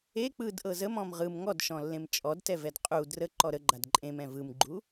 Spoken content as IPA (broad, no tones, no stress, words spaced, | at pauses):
e k͡pɯdʔɤ zəmɔ̃m ʁɯm ŋɔdʃɔ̃lːẽm t͡ʃʼɔdtɛvɛd qʼu drəǃɔ ɾəɡ͡ǃad ǃʼẽmɛ̃ vɯmɡ͡ǃu